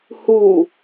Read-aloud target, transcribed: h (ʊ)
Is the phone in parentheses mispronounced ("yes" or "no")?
yes